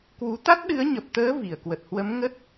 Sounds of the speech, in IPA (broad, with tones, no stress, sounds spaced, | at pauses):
k w u˨˦ t̪ a˦˥ t̚ ɗ ɨ˨˦ ə̯ ɲ ə˨˩ p̚ t̪ əː˨˦ v i˧˩ ə̯ k w ə˨˩ t̚ h w ə˨˦ m ŋ ə˦˥ t̚